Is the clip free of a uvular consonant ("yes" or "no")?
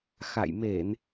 yes